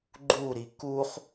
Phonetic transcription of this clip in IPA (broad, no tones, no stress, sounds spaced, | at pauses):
ɡ͡ǃ u ɾ i k u χ